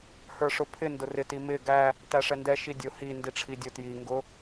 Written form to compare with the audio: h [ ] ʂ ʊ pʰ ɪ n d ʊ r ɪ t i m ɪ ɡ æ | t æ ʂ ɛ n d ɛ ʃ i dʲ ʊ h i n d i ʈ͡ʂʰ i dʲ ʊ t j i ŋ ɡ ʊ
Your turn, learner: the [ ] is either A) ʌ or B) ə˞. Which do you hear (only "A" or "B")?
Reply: B